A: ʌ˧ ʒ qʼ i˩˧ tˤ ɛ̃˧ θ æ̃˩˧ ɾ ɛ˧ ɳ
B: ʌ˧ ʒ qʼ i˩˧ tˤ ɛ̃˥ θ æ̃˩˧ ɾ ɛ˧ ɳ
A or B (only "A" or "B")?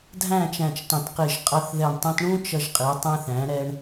A